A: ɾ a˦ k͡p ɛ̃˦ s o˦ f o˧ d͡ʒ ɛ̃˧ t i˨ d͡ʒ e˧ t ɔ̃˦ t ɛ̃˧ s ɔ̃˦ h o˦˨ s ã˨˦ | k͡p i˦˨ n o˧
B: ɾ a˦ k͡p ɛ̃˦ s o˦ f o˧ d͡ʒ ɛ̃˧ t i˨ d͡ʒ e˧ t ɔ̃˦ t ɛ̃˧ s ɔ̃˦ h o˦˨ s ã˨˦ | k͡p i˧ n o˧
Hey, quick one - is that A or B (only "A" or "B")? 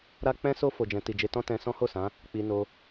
B